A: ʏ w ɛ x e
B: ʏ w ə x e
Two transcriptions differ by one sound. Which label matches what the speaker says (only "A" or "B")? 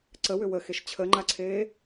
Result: B